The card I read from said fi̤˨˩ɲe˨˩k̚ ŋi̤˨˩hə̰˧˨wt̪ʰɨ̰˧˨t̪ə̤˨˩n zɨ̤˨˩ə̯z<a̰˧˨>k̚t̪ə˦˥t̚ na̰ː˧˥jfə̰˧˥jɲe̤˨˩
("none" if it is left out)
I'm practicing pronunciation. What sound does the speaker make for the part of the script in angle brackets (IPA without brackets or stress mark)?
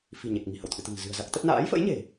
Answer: a˦˥